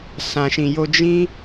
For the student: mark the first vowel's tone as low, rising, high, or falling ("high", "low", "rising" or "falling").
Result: low